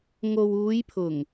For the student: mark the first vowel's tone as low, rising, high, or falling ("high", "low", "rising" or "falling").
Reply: low